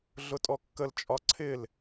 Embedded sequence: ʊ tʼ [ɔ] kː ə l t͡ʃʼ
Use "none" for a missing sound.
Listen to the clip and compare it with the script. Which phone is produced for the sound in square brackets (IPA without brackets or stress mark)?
ɔ